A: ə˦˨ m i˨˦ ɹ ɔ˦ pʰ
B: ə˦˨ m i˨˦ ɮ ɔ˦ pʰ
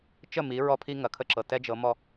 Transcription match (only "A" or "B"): A